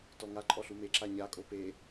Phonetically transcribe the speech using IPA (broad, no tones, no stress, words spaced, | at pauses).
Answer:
tɔŋa ǃʼɔɬume ǁaɲa kʼope